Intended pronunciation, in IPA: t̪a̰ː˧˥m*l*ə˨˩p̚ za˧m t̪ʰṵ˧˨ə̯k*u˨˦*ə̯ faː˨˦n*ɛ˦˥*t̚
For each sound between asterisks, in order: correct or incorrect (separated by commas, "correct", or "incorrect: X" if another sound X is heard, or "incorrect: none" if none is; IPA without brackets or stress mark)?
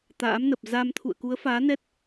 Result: incorrect: n, correct, correct